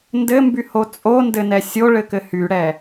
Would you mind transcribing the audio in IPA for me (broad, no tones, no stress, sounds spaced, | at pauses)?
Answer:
n d ɘ m b y h o t͡sʼ o n d ɘ n ɛ sʲ o ɭ ɘ k ɘ h y ɽ ɛ